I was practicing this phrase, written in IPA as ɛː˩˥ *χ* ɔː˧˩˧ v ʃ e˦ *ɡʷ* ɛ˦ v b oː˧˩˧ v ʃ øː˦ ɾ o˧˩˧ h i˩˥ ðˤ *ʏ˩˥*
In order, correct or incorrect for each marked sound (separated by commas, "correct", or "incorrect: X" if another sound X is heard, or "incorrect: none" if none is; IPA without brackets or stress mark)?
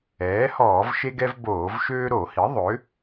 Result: incorrect: h, incorrect: ɡ, correct